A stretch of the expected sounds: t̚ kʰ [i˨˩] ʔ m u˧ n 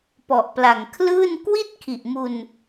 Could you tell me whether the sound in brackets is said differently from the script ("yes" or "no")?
no